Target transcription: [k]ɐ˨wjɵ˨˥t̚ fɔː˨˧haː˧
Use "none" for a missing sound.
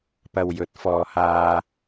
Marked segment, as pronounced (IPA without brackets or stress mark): p